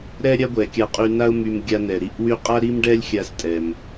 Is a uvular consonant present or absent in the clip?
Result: present